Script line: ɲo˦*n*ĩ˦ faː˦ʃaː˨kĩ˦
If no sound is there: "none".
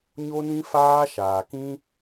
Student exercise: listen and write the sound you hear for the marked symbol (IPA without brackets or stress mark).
n